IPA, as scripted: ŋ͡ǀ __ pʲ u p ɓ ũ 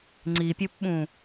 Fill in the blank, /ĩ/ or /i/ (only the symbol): i